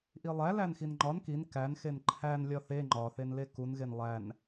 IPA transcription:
ʔ i lˠ æ l æ n x i n ŋ͡ǃ ɒ n k i n k æ n x e n ǃʰ æ n lʲ ɒ θ e ŋ͡ǃ ɒ θ e n l e k u n ɣ e n lˠ æ n

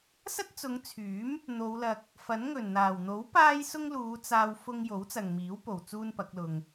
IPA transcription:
s ɐ˥ t̚ t͡s ʊ˨˧ ŋ t͡sʰ yː˨˥ m | n̪ o˨˧ w l ɐ˧ k̚ | f ɐ˨˥ n ŋ ɵ˨˩ n n̪ aː˨˩ w n̪ o˨˥ w p aː˥ j s ʊ˥ ŋ l uː˨˧ t͡s aː˧ w f ʊ˧ ŋ j o˨˥ w t͡s ɐ˨ ŋ m iː˨˥ w p o˨ w t͡s uː˥ n p ɐ˨˥ k̚ l ʊ˧ ŋ

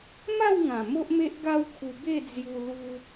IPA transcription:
m a˥˧ w ŋ ã˨˩ m o˦ ʔ m e˦ ʔ ɡ a˦ w kʰ u˧ b e˥˧ d͡z j u˧ l u˧

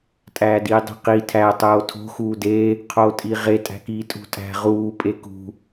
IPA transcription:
tʼ æː d iː dˤ i̤ q i tʰ æ tˤ oː tʰ o̤ x uː d e | qʰ oː tʼ i ʁ e tʼ æ̤ k iː tʼ ṳ tʼ æ̤ ʁ uː pʼ e k ṳ

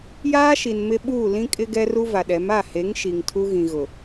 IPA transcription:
j aː˦ ʃ i˨ n m ɪ˦ ɓ uː˦˨ l ĩ˦ kʼ ɪ˦ ɡ ɛ˦ r u˦ v a˨ ɗ ɛ˨˦ m a˦˨ h e˨˦ ŋ ʃ i˨ ŋ tʰ u˦ ɣ ĩ˨ ɣ ʊ˨

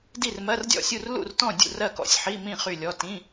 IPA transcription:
d i˥˨ r m ɜ˧˥˧ r dʲ ɔ̰˥˨ sʲ u˥˨ r l ṵ˥˨ r t ɔ̃˥˨ dʲ ṵ˥˨ r ɜ˥˨ k ɔ̰˧˥˧ sʲ ħ i˧˥˧ m ĩ˥˨ χ y˥˨ lʲ ɔ˧˥˧ t ĩ˧˥˧

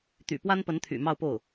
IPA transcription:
t̪ y̰˨˩ p w a˥ n p ə˧˥ n t̪ʰ y̰˨˩ m ɑ˥˧ ʊ̯ p o˥˩ ʊ̯

